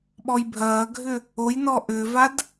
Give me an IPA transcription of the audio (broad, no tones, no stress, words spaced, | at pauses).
ɓɔjbʱɐːɡʱʏ | ojnɔ ʔʏːvad